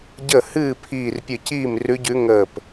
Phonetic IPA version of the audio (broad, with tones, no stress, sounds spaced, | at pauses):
ɟ ə˥˩ h ɨː˥˩ pʰ iː˧˩ r pʲ ɨ˧˩ c iː˥˩ m r ʉ˧˥ ɟ ʉ˧˥ ŋ əː˧˩ p